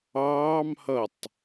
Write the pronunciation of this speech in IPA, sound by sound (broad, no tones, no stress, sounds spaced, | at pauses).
ɑː m h ʌ tˤ